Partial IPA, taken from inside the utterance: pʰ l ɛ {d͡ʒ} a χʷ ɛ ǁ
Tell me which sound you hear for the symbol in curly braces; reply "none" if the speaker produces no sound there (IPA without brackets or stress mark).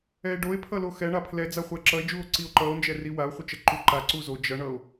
d͡z